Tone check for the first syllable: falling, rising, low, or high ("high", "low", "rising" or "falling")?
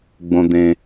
high